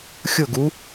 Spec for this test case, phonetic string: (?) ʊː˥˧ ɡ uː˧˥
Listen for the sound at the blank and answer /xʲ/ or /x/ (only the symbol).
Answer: xʲ